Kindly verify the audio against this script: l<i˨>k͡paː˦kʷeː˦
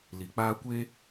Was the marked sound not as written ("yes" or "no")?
no